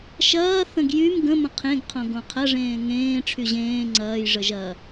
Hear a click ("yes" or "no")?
yes